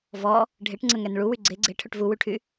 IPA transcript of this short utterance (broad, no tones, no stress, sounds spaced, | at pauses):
v ɔ | ɖʱ e ʈ ŋ͡ǀ ə ŋ ɛ n ɭ u w y ɡ͡ǀ e ɡ͡ǀ e ʈʰ ø ʈ v u w y ʈʰ y